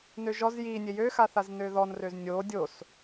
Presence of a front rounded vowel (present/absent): present